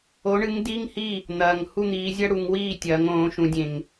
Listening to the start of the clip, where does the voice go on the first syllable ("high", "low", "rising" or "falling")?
rising